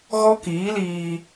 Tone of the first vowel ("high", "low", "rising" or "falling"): high